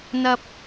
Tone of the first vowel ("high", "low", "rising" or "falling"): high